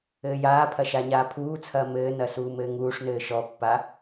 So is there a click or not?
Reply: no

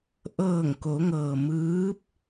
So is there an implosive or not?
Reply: no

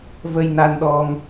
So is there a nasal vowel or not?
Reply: no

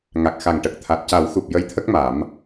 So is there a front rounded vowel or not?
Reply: no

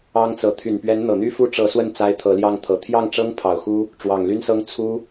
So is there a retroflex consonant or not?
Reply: yes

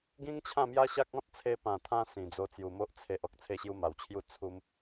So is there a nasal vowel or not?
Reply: yes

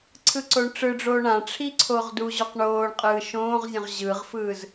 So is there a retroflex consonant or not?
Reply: yes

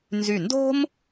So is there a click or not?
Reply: no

